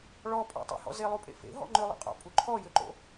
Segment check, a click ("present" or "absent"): present